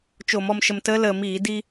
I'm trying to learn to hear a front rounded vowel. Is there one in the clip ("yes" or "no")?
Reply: no